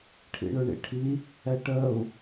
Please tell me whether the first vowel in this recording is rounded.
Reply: no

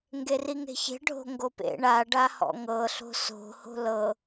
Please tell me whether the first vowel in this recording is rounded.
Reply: no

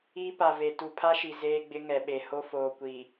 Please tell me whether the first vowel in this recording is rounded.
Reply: no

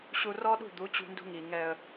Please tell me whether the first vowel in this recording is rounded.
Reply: yes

